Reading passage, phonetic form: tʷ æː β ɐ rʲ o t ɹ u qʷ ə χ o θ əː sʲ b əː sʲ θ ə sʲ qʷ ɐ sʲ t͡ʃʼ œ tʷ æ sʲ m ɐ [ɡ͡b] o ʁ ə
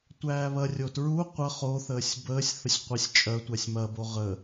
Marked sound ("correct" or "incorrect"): incorrect